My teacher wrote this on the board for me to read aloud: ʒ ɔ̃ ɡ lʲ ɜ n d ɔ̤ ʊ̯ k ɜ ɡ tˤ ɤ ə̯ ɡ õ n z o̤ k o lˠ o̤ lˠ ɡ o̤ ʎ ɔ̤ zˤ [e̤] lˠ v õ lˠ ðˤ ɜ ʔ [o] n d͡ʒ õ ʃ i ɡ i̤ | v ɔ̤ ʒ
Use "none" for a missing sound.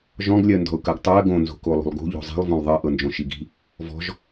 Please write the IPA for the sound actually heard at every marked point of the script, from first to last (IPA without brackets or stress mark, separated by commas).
i̤, ɤ